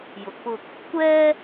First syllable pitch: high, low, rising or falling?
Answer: low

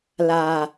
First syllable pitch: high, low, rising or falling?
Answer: low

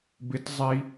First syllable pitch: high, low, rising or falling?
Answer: high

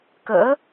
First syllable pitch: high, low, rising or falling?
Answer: rising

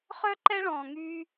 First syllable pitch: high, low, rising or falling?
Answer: high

